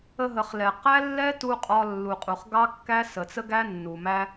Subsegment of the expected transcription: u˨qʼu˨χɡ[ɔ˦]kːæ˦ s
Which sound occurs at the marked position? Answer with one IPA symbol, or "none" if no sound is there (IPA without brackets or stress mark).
ɑ˦